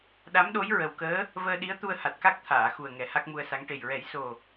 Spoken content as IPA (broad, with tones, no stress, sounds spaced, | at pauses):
ɗ a˧˥ m ɗ o˧˥ j ɹ ə˨˩ w k əː˧˥ | v əː˧ ɗ i˧˥ ə̯ t̪ u˧ ə̯ h a˨˩ t̚ k a˦˥ k̚ t̪ʰ aː˨˩˨ x u˨˩ ə̯ ŋ ɛ˨˩˦ h a˦˥ k̚ m u˧ ə̯ s a˧˥ ŋ ʈ e˨˩ j ɹ ɛ˨˩˦ j s o˨˩